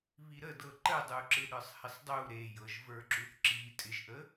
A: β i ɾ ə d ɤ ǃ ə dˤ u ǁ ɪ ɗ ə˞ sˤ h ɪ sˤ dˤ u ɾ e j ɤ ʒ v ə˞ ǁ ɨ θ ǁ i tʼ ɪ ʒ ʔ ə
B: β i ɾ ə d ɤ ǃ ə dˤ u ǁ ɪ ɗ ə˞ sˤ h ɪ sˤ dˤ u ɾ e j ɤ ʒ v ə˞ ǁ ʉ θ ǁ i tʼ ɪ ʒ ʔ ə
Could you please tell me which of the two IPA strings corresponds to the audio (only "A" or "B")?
B